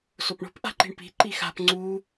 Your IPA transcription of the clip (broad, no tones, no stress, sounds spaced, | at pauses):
s o p ɳ o̤ p ʔ a̤ ǃ i̤ ɳ p i̤ ǃ i x a̤ p ŋ͡ǀ u